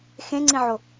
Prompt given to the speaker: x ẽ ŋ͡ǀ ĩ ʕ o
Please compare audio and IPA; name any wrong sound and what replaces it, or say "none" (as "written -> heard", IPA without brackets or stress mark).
none